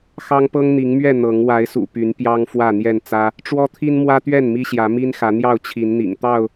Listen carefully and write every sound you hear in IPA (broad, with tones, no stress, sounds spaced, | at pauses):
x ɑ˦ ŋ p ɤ˦ ŋ n̪ i˨˦ ŋ m ɥ ɛ˥˨ n̪ ɤ˨˦ ŋ w a˨˦ ɪ̯ s ṵ˨˩ p y˨˦ n p j ɑ˦ ŋ f w ä˥˨ n̪ j ɛ˥˨ n t͡s ä˦ | ʈ͡ʂ w ɔ˦ t̪ʰ i˦ n m w ä˦ t̪ ɥ ɛ˥˨ n m i˦ ɕ j ä˨˦ m i˦ n x ä˨˦ n̪ j ɑ˥˨ ʊ̯ t͡ɕʰ i˨˦ n n̪ ḭ˨˩ ŋ t̪ ɑ˥˨ ʊ̯